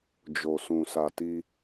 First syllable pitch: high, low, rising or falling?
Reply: low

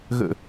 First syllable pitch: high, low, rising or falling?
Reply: falling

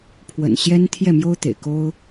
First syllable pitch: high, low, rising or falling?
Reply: low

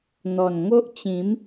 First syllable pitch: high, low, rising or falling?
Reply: low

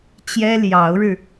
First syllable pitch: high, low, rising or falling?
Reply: high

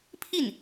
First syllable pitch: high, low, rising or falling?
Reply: falling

